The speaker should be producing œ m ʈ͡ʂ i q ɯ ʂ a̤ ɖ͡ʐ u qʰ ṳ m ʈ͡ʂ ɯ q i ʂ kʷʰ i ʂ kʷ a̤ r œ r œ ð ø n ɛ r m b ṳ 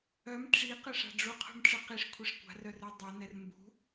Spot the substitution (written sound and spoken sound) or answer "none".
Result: ð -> dˤ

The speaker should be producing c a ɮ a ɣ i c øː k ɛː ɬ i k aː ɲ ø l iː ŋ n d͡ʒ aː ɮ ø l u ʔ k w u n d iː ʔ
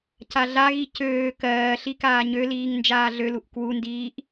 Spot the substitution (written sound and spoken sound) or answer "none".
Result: ɛː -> ɜː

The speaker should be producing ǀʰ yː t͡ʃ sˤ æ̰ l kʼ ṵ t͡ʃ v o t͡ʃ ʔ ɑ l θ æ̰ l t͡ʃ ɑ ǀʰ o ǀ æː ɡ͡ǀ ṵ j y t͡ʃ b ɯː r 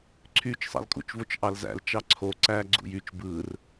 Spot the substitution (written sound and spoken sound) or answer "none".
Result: θ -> z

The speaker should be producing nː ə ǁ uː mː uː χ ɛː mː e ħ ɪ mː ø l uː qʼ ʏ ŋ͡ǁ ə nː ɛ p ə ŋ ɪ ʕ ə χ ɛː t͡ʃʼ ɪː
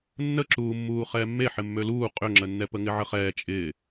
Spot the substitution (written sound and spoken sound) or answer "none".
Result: none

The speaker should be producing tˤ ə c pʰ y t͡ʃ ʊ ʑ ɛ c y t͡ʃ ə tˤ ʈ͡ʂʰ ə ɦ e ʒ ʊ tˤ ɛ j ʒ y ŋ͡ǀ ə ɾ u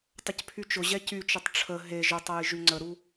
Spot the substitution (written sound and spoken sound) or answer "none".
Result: none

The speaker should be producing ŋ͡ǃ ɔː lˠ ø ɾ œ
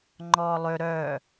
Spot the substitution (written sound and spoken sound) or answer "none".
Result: none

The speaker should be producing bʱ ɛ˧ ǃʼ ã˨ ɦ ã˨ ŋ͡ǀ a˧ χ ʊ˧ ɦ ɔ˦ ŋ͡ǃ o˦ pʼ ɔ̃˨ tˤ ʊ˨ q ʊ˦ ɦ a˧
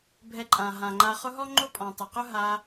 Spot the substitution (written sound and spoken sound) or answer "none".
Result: ŋ͡ǀ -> ŋ͡ǃ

